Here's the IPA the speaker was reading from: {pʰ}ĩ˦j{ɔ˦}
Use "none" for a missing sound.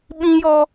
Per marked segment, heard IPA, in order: ɓ, ɔ˦

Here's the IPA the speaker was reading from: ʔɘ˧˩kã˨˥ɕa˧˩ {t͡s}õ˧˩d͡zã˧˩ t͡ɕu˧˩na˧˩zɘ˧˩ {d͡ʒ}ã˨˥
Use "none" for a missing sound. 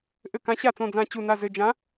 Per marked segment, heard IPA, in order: t͡s, d͡ʒ

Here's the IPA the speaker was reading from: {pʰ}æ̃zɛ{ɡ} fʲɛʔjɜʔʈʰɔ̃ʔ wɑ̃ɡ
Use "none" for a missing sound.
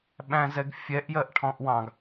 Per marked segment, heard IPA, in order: ɓ, ɡ

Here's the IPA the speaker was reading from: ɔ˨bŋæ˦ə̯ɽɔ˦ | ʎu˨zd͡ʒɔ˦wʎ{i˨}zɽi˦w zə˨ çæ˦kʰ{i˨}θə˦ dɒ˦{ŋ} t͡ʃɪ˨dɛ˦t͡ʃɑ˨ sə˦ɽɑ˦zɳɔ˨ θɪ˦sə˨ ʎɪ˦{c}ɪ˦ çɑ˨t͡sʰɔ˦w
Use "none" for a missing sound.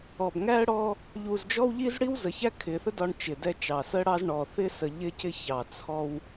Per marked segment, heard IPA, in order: i˦, ɪ˨, ɳ, c

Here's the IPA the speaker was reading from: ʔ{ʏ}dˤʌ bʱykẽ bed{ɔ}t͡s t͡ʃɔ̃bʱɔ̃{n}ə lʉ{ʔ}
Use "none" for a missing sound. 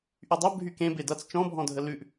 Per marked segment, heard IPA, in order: y, ʌ, dʱ, ʔ

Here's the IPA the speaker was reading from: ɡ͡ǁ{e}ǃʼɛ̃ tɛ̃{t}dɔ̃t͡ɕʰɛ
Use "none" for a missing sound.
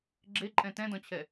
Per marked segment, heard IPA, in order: e, none

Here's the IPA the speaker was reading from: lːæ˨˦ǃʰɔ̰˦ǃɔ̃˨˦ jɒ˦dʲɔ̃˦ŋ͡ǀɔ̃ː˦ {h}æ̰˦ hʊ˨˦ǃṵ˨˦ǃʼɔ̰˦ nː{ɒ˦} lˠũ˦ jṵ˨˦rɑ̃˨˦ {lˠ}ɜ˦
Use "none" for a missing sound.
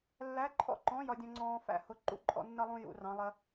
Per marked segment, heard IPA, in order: f, ʌ˦, lˠ

